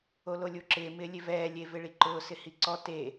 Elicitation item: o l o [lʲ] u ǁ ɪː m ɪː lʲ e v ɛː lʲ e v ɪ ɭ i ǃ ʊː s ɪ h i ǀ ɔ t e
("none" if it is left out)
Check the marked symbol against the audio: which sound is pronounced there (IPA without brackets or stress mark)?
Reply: lʲ